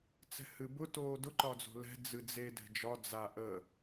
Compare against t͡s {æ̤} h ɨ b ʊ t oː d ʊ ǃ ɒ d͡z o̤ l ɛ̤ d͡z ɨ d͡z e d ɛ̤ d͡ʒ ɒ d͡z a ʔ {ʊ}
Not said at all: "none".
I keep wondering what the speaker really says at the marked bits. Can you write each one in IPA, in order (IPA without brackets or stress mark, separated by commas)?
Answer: ɛ̤, ə